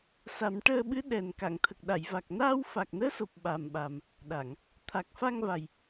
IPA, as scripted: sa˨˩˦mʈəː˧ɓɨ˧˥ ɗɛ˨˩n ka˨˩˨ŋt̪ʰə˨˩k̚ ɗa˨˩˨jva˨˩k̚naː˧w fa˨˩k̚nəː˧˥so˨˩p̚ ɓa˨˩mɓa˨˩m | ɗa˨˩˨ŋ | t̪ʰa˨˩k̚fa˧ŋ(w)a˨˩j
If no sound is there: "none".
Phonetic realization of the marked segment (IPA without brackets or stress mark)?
v